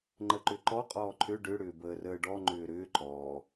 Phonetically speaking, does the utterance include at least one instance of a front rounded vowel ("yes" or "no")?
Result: yes